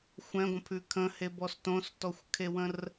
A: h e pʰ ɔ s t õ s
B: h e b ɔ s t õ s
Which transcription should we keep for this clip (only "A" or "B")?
B